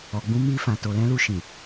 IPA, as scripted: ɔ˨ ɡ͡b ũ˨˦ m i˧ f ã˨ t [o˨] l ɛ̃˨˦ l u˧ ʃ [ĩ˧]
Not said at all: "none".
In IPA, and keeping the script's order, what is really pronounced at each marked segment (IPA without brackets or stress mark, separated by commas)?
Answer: o˨, ĩ˨